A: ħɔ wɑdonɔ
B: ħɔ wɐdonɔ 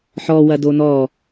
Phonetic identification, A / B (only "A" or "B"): B